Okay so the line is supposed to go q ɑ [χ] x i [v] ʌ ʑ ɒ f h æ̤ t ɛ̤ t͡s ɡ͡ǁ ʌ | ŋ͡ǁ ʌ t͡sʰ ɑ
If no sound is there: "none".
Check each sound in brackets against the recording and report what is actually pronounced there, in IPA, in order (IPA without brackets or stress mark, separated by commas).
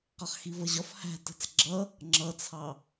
χ, v